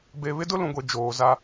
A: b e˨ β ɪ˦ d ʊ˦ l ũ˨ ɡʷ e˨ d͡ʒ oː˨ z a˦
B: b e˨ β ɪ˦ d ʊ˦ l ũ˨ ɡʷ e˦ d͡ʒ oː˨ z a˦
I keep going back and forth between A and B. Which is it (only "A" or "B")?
A